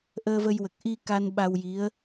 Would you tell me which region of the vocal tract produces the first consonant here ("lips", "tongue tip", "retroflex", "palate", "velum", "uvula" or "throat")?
throat